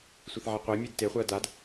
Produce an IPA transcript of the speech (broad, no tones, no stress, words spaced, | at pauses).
sʷeθʕɛqʷemʲed teχʷɜ dad